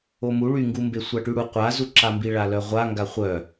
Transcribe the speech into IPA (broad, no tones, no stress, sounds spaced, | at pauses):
o m u ɭ y ŋ ɡ u m b e sʷ a ʈ y ɽ u qʷ a z u ǁ a m b i ɭ a l œ ʁʷ a ŋ ɡ a χʷ œ